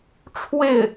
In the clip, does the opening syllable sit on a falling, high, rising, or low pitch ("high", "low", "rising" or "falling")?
falling